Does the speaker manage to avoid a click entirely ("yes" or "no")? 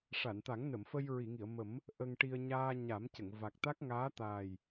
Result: yes